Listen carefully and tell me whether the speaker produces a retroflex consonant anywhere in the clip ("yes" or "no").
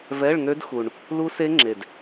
yes